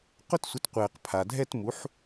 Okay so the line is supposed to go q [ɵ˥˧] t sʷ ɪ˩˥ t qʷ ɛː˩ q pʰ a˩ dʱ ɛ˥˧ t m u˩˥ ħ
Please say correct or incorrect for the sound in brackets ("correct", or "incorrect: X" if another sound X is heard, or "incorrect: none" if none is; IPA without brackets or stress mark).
incorrect: ʊ˥˧